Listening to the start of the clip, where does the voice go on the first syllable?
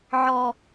high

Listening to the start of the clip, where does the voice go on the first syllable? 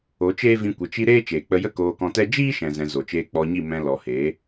rising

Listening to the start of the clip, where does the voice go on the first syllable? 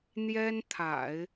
high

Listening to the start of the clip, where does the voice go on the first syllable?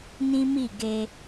high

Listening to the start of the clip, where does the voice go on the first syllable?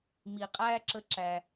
low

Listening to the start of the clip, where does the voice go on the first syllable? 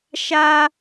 high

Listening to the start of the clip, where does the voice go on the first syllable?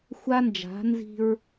high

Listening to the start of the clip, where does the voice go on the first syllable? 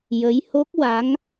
rising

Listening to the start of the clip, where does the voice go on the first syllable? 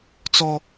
high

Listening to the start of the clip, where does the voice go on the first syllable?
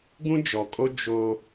high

